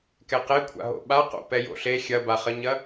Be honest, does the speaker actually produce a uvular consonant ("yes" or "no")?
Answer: yes